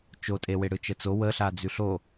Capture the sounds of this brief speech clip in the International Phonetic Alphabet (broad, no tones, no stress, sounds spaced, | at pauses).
t͡ʃ o tʼ e w e ɽ ɯ t͡ʃ ə t͡s o w ə ɬ a d͡z ʉ ɬ o